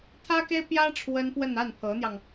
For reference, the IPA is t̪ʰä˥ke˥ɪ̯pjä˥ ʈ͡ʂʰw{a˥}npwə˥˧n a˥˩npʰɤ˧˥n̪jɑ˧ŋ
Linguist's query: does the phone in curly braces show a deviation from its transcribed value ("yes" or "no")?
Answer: yes